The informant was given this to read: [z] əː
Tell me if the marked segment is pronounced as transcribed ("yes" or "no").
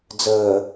no